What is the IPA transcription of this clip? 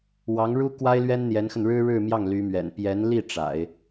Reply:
w ɑ˧˥ ŋ ɻ u˥ k w a˥ ɪ̯ l ɥ ɛ˥ n n̪ j ɛ˧˥ n x ə˧ n ɻ ɻ̩˥ ɻ ɻ̩˥˧ m j ɑ˥˩ ŋ l y˧˥ m ɥ ɛ̰˨˩ n p j ɛ˧˥ n l i˥˩ ʈ͡ʂ a̰˨˩˦ ɪ̯

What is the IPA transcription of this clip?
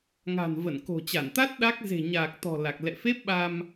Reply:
ŋ a̤˨˩ n v ə˧˩ n k o̤˨˩ t͡ɕ a˧˩ n t̪ a˦˥ t̚ ɗ a˦˥ k̚ z e̤˨˩ ɲ aː˨˩ k̚ t̪ ɔ̤˨˩ l a˨˩ k̚ l ɛ̰˧˨ f e˦˥ p̚ ɓ a˧ m

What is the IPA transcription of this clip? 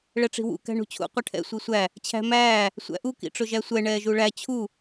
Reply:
ɭ ɛ ʈ͡ʂ i̤ w ṵ k æ̤ ɳ ṳ t͡ɕʰ ṵ qʷ ʌ ʈʰ ɛ̰ sʷ i sʷ æ | t͡ɕʰ æ̤ m æː | sʷ æ̰ ʔ u k ḭ ʈ͡ʂ ʊ ʒ æ sʷ ɛ ɳ ɛː ʒ u ɭ æ t͡ɕʰ u

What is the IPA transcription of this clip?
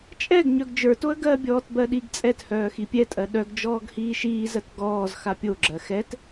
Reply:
t͡ʃʼ ɛ ɡ ɲ œ ɡ d͡ʒ ə˞ t o ə̯ ɡ ɜ bʲ ɔː t b ɜ ɗ i ɡ t͡sʼ ɛ t h œː x i pʲ ɛ tʼ ɜ ɗ œ ɡ d͡ʒ ɔː ɡ h iː ʃ iː z ɜ t ɡ ɔː z x a pʲ o ɡ͡ǁ ɜ x ɛ t

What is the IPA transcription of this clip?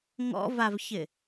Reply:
ŋ ɔ̰ v a v ç ɪ

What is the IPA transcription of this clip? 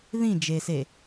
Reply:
ð ĩ d͡ʒ e s e

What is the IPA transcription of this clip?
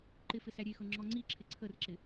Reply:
ǃ ɪ f ɪ s æ ɾʲ e x ɤ ŋ͡ǁ ɔ ŋ͡ǀ i ǁʰ ɪ ǀʰ ə r ǁ ɪ

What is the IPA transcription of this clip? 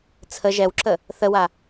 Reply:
t͡sʰ ə ʒ ɛ w ǁ ə | θ ə w a

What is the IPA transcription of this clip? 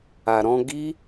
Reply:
a˧ ɾ ɔ̃˦ ɡ i˦

